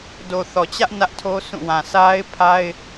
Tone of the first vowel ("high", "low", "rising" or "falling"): low